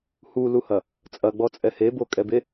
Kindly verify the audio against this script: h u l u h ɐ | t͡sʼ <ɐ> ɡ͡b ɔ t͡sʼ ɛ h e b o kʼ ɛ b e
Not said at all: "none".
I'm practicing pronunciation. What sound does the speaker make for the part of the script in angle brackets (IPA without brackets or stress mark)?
ɐ